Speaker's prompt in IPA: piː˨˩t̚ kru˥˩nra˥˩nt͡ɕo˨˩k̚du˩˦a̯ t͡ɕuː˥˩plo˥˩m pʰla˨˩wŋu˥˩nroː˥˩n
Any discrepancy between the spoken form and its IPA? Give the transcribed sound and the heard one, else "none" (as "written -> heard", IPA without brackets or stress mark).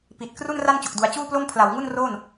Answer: iː˨˩ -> i˨˩